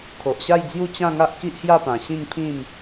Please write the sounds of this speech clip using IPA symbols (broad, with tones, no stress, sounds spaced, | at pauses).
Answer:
kʰ o˨ ʔ ɕ a˥˧ j d͡z j u˥˧ t͡ɕ ã˥˧ ŋ a˦ ʔ k i˦ ʔ h j a˥˧ p ã˨˩ ɕ ĩ˥˧ ŋ pʰ ĩ˥˧ m